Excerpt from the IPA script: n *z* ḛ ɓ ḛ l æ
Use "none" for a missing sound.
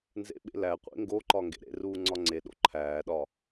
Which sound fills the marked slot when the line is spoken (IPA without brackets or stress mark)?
z